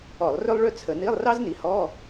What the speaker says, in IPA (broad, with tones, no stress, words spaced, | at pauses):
ɔ˧˩˧lˠrø˥lˠɭø˥t͡sʰə˧˩˧ ni˧˥˧lˠrɑ˥zni˩˥ hɔ˧˥˧